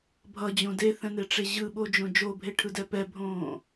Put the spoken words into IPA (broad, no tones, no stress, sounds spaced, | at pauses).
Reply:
bʱ ʌ d͡ʑ õ d e θ ɛ̃ n e ʈ͡ʂ e ʑ ɯ ɓ o d͡ʒ õ d͡ʒ o bʱ e ʈʰ ɯ d ɛ p ɛ bʱ õː